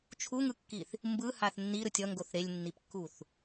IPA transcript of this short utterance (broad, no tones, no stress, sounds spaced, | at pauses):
t͡ʃʰ u ŋ ɯ kː i θ | m b ɯ h a θ nː i ɾ ɯ tʲ ʌ ŋ ɡ o θ ɾ e lʲ nː i p kː u θ